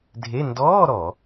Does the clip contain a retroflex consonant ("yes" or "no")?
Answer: no